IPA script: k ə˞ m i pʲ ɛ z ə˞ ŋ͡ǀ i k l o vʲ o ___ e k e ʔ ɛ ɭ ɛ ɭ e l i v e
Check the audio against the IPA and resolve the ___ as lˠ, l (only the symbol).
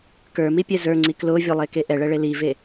lˠ